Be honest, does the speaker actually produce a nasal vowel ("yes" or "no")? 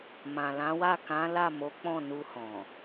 yes